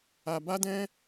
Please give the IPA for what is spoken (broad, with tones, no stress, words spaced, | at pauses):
a˧ba˦dɛ̃˦